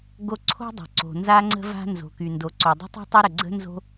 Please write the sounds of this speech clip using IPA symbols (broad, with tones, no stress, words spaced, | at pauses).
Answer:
ɡo˥ ǀʰo̤˥dˤo̤˩ ǀo̤˩ nza˥ŋ͡ǀə̤˥ va̤˥ nzo̤˩ky˩ ndo˩ǀo˩dˤə̤˥tˤo̤˥ tˤə˥ɾə˩ɡ͡ǀə̤˥ nzo̤˥